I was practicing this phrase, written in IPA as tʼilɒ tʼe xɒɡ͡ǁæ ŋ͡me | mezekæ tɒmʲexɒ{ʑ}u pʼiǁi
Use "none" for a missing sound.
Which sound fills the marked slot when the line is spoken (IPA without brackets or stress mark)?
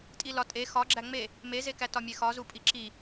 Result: z